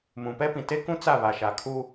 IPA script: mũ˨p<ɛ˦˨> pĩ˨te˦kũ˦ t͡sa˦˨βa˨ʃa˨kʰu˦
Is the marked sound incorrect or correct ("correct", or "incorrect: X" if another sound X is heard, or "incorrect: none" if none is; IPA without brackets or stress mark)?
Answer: incorrect: ɛ˦